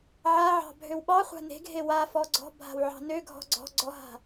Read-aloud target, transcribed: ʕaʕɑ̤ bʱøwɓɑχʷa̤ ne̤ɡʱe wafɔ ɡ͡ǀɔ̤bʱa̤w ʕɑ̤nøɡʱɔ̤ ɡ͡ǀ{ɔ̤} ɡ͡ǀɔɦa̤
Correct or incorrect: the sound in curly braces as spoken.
correct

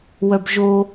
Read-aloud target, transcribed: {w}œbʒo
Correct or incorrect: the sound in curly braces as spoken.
correct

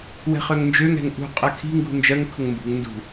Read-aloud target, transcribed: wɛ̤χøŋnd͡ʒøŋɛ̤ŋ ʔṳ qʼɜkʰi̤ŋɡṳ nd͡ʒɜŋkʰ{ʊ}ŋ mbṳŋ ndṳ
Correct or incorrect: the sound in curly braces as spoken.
correct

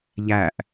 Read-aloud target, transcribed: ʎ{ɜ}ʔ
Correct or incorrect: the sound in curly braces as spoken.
incorrect: æ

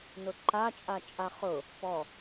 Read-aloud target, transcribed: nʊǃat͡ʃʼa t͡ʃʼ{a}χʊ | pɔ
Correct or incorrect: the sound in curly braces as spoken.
correct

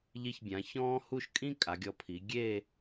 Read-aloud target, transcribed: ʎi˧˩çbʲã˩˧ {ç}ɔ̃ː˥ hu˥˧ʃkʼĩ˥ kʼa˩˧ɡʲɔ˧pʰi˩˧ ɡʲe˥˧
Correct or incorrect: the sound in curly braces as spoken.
correct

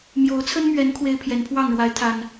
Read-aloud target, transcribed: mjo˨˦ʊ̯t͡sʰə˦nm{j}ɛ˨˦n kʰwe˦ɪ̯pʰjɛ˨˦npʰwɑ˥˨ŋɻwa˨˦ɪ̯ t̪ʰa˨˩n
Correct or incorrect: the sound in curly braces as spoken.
incorrect: ɥ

